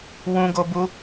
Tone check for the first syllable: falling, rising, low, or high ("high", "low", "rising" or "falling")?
high